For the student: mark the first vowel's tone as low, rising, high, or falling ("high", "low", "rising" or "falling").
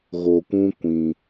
low